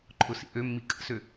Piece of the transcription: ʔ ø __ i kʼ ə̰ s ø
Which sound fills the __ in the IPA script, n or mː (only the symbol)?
mː